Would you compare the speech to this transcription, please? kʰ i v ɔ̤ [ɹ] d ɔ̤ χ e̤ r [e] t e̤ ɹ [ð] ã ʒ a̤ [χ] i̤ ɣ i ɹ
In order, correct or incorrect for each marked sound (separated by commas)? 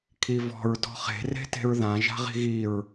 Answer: correct, incorrect, correct, incorrect